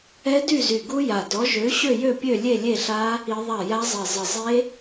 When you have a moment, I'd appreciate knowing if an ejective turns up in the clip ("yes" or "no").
no